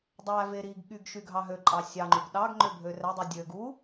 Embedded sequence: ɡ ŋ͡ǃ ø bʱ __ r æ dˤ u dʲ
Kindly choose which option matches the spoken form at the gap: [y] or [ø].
ø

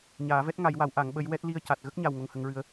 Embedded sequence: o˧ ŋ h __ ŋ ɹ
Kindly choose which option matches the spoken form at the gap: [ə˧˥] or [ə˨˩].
ə˧˥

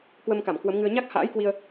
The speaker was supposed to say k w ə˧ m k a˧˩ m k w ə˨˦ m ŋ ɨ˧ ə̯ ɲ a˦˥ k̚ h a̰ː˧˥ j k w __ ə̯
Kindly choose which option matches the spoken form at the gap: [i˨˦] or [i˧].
i˧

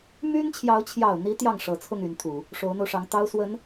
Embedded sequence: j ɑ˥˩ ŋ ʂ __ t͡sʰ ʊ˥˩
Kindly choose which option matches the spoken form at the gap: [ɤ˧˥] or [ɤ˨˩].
ɤ˨˩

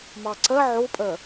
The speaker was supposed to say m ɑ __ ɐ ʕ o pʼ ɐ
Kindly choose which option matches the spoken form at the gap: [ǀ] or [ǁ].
ǀ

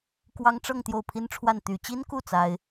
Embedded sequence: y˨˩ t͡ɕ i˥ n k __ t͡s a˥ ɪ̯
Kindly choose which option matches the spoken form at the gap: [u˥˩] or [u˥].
u˥˩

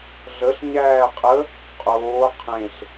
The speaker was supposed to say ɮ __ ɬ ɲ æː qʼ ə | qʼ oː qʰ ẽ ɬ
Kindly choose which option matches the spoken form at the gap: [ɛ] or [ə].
ə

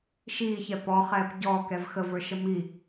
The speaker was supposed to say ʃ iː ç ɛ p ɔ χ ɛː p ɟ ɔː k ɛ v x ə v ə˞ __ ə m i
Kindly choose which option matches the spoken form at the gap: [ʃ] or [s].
ʃ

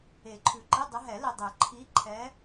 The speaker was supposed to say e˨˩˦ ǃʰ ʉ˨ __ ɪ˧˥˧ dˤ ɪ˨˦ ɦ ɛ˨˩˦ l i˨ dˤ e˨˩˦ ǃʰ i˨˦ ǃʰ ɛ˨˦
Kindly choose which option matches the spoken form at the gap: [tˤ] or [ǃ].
ǃ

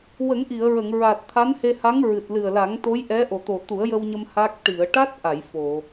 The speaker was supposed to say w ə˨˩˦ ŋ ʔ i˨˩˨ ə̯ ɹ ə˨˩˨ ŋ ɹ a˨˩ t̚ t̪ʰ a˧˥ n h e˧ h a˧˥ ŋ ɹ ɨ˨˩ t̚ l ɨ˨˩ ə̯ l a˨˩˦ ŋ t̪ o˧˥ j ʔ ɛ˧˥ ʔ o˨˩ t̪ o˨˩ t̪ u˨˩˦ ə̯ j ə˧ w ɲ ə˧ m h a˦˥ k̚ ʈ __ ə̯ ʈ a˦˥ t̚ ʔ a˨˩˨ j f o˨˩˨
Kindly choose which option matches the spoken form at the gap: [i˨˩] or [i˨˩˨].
i˨˩˨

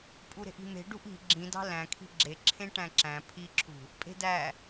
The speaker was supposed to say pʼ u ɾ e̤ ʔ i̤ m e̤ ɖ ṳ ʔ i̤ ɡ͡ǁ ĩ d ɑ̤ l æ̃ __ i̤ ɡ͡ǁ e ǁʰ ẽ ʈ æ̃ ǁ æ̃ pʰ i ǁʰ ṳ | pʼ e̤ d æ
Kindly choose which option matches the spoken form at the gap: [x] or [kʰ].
kʰ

